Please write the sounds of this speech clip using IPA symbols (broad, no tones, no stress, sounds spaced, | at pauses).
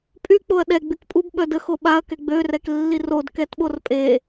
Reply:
pʼ y k͡p o ɐ̯ ɗ ɛ ɡ͡b y k pʼ u b ɓ œ d ə x o ɓ a ɐ̯ k ɛ ɡ͡b ø r ɛ k lː i r o d k ɛ t ɓ o r pʼ e